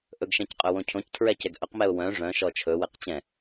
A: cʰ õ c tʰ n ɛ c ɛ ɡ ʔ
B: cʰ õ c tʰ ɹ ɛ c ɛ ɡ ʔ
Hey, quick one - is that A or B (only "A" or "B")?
B